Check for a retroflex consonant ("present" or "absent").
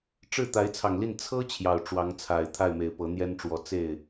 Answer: present